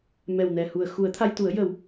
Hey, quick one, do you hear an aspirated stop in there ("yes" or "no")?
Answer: yes